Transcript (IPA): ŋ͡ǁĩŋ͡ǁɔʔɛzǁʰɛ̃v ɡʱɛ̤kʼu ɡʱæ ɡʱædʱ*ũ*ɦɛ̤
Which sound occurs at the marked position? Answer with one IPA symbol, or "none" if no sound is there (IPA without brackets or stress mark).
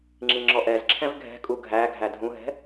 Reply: ũ